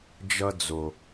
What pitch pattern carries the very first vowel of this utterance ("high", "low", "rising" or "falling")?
high